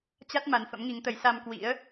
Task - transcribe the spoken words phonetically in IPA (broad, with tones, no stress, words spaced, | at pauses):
t͡ɕa˦˥t̚ ma˨˦nfə̰˧˥mŋi˨˦ŋt̪ə˨˦j sa˧mkwḭ˧˥ə̯